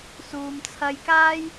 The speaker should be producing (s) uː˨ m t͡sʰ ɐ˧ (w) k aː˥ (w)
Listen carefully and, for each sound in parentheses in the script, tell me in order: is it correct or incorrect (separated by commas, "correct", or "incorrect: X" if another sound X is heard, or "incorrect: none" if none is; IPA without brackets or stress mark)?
correct, incorrect: j, incorrect: j